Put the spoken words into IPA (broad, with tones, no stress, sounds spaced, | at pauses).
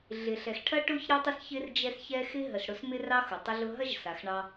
ɮ ɪ˩ ɬ ɛ˩ x ʈʰ ɐ˥ ʈ ʊ˥ ç ɾ ɪ˦ tˤ ɪ˦ s ç ɪ˦ r d͡ʒ ɛ˦ s ç ɛ˦ x ɪ˥ ɦ ə˩ s ɽ ʊ˦ s m ɪ˥ r ɑ˥ x ʊ˩ tˤ ə˥ ɮ ʊ˥ ɦ ɐ˥ ʒ s a˩ x ɳ ɑ˦